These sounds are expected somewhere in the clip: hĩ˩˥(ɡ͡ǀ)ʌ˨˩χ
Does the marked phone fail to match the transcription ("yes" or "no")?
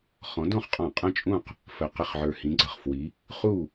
no